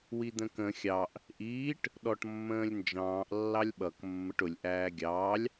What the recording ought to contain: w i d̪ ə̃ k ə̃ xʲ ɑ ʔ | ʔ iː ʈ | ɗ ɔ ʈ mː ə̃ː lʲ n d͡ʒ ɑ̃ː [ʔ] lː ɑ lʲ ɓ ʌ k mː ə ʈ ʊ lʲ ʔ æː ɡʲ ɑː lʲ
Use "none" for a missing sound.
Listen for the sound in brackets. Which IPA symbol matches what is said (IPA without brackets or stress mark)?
ʔ